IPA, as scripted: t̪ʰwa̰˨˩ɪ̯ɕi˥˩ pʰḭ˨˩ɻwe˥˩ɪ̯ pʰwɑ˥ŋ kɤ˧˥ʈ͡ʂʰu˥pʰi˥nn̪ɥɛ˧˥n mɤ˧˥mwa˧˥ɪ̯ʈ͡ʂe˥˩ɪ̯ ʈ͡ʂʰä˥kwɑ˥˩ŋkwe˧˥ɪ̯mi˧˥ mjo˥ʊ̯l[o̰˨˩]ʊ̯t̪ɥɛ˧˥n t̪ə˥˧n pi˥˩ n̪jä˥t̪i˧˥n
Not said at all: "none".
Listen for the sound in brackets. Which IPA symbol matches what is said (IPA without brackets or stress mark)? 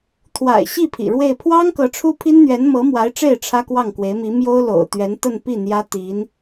o̰˨˩